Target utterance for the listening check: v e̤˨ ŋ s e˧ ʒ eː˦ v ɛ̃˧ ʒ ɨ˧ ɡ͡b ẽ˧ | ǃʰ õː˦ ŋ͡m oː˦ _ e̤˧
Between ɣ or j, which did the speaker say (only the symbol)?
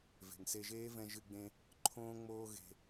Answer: ɣ